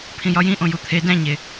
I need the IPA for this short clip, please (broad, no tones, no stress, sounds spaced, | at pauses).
pʰ ĩ j ɒ j ĩ ʔ õ j u t̪ʰ e d æ̃ ɲ e